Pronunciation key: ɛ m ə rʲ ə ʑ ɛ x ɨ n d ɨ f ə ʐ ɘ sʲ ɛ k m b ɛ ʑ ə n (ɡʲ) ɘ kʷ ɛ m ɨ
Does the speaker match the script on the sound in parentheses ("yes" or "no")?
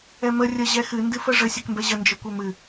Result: no